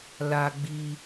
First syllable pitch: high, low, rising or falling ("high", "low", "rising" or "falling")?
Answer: high